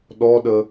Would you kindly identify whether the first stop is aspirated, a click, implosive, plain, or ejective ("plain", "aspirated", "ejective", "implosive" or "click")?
implosive